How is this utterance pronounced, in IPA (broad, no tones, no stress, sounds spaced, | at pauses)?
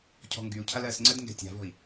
cʰ ɔ̤ ŋ ɡ y u̯ cʰ a l ɜ s ŋ͡ǀ ɜ d ŋ ɡ ɛ̤ tʲ a̤ v ɔ̤ i̯